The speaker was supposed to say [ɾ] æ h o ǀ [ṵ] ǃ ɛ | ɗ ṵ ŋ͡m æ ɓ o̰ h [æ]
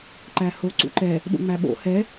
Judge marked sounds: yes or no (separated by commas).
no, yes, no